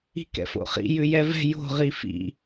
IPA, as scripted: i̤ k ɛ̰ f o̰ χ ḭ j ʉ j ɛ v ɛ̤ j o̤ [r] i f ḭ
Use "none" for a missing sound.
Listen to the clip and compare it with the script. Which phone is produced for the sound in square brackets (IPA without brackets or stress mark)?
ʁ